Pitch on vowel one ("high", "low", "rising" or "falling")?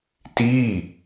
falling